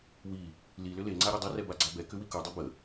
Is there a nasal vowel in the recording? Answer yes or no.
no